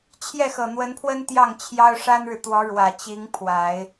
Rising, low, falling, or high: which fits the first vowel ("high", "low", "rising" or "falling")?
falling